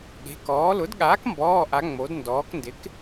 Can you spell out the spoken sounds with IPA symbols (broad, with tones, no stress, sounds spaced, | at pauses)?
ɠ e̤˩˧˩ k ɔː˩˥ l ʊ˩˥ d ɠ aː˩˥ k m b ɔː˩˧˩ ʔ a˩˧ ŋ͡m o˩˧ d n d ɔː˩˧ k n d ɪ˩˥ k